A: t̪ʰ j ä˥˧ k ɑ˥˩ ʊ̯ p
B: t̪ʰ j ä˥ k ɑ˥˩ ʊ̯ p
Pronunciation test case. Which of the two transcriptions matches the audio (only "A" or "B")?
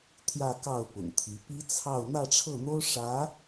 A